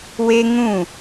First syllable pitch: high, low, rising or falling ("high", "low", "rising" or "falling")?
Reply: high